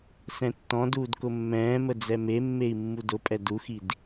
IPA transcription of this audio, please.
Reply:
s ɛ̃ tː ɔ̃ d uː d k ʊ mː ɛ̃ː m ə d͡z ɛ m e mː e i̯ mː u d ʊ pʼ ɛ d u x i d

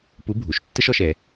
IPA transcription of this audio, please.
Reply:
p u˧˥ bʱ u˩˧ ʃ tː ə˥ ʃ ɔ˩˧ ʃ ɛ˩˧

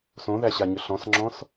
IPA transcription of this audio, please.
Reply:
s õ ð æ ɕ a ɲ ʏ ɬ ɔ̃ s ŋ͡ǁ ɔ̃ s

